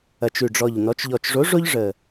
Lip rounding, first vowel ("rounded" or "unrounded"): unrounded